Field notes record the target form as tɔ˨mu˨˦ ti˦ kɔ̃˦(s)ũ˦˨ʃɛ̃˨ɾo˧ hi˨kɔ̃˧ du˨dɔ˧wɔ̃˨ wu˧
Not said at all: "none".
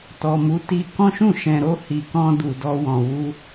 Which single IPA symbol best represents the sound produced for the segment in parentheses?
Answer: ʃ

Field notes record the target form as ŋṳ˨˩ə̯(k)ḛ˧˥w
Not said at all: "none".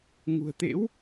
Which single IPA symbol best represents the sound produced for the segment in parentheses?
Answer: t̪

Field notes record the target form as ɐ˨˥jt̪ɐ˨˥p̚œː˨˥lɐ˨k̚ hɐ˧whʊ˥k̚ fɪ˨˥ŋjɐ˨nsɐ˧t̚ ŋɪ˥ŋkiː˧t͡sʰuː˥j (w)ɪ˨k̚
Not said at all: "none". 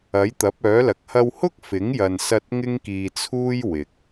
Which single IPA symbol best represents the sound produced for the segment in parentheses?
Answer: w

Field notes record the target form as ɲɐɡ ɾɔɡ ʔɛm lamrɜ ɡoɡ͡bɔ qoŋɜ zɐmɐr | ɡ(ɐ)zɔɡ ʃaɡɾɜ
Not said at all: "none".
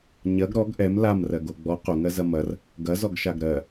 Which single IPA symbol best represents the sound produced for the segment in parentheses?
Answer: ɐ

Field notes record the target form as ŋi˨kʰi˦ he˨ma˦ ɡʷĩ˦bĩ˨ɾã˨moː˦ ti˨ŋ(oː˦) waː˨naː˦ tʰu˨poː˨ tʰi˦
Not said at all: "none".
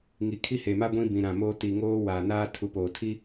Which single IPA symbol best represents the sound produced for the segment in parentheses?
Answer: oː˦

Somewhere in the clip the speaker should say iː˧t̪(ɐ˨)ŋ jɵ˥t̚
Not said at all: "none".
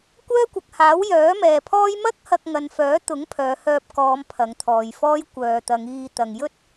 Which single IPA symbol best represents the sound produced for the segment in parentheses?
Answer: ɐ˨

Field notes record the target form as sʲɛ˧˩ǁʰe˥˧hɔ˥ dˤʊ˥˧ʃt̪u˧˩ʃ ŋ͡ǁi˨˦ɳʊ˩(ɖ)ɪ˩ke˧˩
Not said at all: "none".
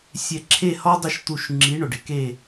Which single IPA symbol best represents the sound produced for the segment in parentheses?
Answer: ɖ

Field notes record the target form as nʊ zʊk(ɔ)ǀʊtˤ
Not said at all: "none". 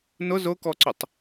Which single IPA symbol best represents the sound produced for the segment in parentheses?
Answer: ɔ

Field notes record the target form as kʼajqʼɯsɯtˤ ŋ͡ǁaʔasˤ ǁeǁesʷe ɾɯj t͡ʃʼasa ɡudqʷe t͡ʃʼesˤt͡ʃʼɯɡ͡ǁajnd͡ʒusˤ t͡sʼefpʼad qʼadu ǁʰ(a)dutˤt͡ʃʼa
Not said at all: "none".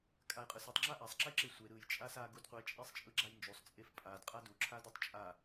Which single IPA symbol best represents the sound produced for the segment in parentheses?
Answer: a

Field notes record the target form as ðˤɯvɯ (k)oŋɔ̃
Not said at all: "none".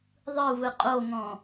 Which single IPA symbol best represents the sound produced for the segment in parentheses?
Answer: qʼ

